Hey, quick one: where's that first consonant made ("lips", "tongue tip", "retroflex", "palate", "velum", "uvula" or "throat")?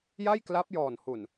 palate